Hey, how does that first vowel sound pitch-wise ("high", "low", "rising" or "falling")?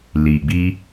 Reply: low